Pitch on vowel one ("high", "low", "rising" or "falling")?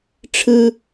high